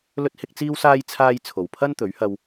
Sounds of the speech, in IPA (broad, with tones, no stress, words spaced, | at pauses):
lɵ˥t̚hɪ˥k̚t͡siː˥wsaː˥j t͡sʰaː˥j t͡sʰo˨wpʰɐ˥n t̪ɵ˨˥ɥhɐ˧w